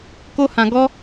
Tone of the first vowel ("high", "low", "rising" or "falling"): high